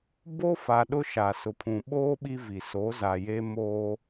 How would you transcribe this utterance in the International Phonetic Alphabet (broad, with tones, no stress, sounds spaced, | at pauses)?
b o˦ f a˨ ɗ ʊ˦ ʃ a˨ s ʊ˨ pʰ ũ˨ ɓ oː˦ ɓ i˦ v i˨ s o˨˦ z a˨ j e˦ m oː˦